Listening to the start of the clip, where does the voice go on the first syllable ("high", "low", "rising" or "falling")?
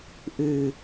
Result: low